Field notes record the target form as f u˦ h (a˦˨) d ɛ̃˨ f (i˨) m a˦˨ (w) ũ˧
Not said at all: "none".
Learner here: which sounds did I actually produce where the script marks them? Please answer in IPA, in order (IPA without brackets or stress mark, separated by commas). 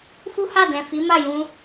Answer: a˦˨, i˨˦, j